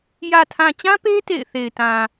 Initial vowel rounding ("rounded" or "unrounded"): unrounded